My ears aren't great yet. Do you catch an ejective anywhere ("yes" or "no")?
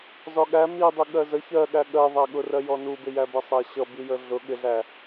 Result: no